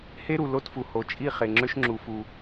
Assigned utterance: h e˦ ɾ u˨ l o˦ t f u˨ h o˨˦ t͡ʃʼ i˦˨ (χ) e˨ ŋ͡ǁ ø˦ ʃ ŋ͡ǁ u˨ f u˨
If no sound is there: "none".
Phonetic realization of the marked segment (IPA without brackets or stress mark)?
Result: χ